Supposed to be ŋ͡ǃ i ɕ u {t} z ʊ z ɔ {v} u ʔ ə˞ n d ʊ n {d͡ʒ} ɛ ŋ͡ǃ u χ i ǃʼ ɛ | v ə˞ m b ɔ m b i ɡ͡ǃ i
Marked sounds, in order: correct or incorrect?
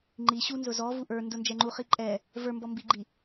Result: incorrect: n, correct, correct

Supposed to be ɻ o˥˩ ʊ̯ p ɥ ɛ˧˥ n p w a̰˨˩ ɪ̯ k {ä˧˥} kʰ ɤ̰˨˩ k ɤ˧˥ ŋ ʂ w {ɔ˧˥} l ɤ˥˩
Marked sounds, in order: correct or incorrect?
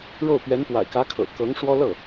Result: correct, incorrect: ɔ˥

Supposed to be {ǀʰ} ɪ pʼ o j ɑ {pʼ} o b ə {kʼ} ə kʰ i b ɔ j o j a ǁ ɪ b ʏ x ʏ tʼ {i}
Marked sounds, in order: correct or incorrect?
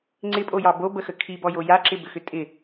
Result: incorrect: ŋ͡ǀ, incorrect: b, incorrect: x, incorrect: ɪ

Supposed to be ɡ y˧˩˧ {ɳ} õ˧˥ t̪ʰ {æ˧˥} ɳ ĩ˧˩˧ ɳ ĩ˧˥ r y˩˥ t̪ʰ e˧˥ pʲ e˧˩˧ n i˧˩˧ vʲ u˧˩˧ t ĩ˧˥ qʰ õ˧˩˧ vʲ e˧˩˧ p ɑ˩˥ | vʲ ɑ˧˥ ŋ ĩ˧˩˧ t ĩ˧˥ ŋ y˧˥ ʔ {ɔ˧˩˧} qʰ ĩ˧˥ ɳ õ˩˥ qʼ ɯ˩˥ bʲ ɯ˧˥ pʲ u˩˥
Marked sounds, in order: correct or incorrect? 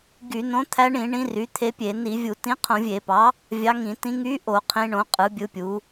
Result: incorrect: n, correct, incorrect: o˧˩˧

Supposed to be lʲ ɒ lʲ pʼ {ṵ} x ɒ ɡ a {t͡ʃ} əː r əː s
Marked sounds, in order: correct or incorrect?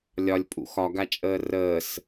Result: correct, incorrect: t͡ʃʼ

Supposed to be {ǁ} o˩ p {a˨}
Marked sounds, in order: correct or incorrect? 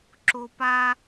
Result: correct, correct

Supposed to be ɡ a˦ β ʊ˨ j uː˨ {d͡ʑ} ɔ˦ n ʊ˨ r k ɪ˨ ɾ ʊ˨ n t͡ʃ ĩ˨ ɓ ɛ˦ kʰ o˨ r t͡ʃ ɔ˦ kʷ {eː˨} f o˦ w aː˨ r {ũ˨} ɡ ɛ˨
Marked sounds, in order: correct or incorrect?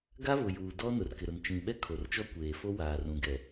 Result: incorrect: d, correct, correct

